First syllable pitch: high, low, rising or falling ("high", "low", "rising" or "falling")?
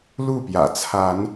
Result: falling